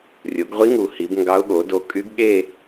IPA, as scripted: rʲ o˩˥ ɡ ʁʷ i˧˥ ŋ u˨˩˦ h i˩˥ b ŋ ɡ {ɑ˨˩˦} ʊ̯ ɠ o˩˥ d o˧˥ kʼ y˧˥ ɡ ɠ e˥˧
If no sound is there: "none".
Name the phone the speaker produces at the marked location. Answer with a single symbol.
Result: ɑ˧˥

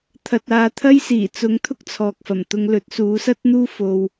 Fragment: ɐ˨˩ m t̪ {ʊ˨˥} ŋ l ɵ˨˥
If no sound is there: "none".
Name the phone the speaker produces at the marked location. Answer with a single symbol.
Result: ʊ˧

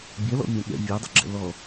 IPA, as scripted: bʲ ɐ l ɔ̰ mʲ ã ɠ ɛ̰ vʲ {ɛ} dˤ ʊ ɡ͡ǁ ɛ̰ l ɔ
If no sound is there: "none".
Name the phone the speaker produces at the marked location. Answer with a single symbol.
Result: ɛ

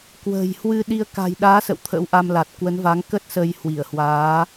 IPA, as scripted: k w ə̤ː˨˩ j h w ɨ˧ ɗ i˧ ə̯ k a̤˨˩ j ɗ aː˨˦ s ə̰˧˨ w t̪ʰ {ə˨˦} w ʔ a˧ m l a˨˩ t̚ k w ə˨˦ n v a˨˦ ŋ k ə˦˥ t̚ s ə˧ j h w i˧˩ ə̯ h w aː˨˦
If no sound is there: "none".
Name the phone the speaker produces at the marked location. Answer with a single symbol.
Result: ə̰˧˥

